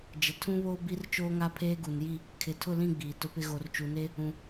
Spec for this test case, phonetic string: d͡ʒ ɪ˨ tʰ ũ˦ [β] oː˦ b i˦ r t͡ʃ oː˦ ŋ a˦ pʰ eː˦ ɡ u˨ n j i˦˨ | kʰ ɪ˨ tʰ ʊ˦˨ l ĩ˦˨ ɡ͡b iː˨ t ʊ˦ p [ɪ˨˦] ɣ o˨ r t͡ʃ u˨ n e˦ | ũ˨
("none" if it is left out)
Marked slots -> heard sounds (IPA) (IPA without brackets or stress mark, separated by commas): β, ɪ˦